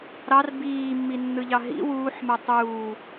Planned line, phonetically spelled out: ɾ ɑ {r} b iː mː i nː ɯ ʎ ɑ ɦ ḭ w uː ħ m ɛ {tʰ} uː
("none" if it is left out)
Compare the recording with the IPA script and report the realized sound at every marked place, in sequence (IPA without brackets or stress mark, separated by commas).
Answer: r, tˤ